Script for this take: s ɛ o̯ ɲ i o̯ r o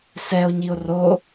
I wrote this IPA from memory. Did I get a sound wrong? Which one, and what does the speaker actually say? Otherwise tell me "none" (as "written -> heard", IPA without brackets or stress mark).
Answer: none